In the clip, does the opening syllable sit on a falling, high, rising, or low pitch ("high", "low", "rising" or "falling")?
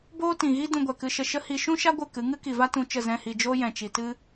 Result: high